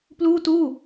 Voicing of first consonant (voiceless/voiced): voiceless